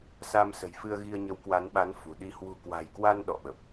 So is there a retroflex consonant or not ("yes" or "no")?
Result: no